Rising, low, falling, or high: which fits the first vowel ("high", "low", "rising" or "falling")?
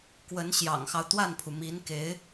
rising